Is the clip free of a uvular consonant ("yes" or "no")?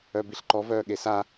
yes